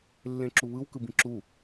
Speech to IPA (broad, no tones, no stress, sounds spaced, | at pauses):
lː ẽ ǁ u β ɯ w k ɯ b ĩ ǁ u